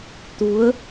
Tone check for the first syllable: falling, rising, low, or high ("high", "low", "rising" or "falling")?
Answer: rising